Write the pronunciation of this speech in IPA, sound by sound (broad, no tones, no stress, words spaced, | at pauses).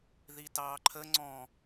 ðitɑːǃʰə ŋ͡ǀɔ̃